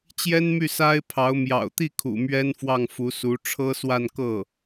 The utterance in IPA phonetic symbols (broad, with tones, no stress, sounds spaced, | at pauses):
t͡ɕ j ɛ˥ n m y˥˩ s a˥ ɪ̯ pʰ ɑ˧˥ ʊ̯ m j ɑ̰˨˩ ʊ̯ t̪ i˥˩ kʰ ṵ˨˩ m ɥ ɛ˥ n f w ɑ˥˩ ŋ f u˧˥ s u˧˥ ʈ͡ʂʰ ɤ˥ s w a˥˧ n k ɤ˥˩